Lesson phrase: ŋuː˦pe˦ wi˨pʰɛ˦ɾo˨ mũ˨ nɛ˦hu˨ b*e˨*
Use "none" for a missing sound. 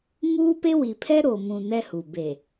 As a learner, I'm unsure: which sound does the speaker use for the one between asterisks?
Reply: e˨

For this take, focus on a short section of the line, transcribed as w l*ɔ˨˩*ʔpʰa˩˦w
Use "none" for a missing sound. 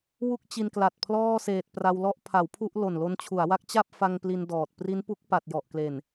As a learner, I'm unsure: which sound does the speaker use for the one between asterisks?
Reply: ɔ˦˥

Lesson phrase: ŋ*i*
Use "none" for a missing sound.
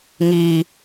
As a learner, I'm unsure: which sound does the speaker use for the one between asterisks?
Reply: i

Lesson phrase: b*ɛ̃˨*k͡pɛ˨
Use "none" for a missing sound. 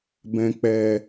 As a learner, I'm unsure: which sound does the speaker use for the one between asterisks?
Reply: ɛ̃˨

